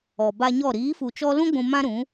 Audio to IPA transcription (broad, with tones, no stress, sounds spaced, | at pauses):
ɔ˨ b a˧ ɲ ɔ˦˨ ɾ iː˨˦ f u˨ t͡ʃ ɔ˧ l ũ˦ ɡʷ ũ˧ m ã˦ ɾ ũ˨˦